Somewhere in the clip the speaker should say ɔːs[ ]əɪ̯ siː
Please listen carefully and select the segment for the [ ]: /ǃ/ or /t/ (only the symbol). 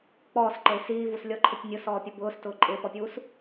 ǃ